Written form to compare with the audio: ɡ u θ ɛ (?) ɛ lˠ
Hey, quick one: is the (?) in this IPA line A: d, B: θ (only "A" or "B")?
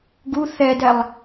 A